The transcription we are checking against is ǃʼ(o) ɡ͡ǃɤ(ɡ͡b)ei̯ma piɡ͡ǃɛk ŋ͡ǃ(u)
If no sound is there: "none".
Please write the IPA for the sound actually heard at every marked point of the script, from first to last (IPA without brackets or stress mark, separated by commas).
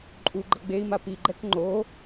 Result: u, ɡ͡b, o